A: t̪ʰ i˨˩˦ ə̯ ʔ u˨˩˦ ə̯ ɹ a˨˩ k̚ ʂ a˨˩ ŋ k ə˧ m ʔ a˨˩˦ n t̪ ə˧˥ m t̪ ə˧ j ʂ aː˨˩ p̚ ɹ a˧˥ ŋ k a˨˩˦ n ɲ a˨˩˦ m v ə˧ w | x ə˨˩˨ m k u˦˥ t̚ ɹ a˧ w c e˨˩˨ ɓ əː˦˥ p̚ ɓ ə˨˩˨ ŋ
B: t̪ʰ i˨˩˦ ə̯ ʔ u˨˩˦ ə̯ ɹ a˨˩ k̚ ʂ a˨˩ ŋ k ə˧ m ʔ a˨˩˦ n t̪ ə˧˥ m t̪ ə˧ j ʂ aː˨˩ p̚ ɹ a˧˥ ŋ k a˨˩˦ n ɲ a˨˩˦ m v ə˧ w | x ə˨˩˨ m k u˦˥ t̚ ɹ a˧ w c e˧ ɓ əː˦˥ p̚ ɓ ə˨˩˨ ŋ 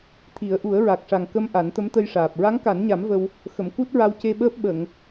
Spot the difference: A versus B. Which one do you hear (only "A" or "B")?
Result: B